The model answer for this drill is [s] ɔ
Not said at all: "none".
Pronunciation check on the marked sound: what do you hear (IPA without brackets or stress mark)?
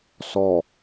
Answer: s